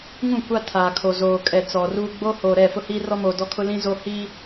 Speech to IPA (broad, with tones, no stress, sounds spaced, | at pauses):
ŋ ũ˦˨ kʷ a˦ tʰ aː˨ kʰ o˨ z oː˨ kʼ ɛ˨ t͡s ɔ˨ r uː˦ ɡ͡b o˦ h oː˨ ɾ ɛ˦˨ f ʊ˦ h iː˦ r ɔ˦ m oː˨ d ɔ˦ kʰ ʊ˦ l ĩ˦ z o˦ h iː˦